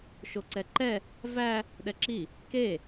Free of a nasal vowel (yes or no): yes